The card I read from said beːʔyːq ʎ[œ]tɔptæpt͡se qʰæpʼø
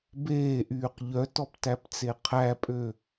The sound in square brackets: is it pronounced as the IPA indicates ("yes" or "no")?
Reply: yes